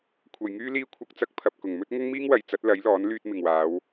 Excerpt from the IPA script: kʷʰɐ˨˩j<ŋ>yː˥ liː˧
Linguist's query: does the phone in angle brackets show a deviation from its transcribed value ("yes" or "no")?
no